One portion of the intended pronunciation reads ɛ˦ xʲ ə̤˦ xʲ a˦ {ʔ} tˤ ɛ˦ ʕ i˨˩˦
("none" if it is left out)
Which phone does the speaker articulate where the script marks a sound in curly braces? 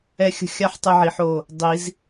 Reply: ħ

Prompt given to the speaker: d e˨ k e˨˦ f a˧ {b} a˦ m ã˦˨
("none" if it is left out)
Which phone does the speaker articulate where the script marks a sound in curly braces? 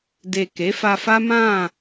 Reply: f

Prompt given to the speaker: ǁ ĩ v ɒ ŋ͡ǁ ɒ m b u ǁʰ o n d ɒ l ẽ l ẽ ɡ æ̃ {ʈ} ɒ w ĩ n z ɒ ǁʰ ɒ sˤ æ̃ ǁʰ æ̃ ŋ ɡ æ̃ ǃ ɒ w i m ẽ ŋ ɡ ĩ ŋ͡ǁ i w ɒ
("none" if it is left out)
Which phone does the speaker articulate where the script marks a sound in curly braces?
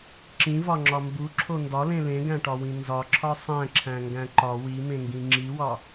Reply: ʈ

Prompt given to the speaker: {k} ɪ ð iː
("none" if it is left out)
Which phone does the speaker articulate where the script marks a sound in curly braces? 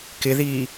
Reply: k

